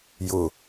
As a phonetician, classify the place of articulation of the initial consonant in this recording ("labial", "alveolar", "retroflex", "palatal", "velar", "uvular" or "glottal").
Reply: palatal